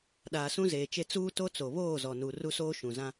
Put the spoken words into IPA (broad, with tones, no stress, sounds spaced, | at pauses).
ɗ aː˨ s ũ˦ z eː˨ t͡ʃ e˦ t͡s uː˦ t o˦ t͡s o˨ β oː˦˨ z ɔ˨ n u˨ r u˦ s oː˦ ʃ ũ˨ z ã˦